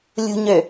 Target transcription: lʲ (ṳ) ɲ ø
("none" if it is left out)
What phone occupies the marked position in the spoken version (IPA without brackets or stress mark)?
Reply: ṳ